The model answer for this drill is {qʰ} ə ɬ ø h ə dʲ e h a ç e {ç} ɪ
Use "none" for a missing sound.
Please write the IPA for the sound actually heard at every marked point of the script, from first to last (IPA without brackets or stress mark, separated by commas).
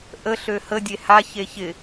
ʔ, ç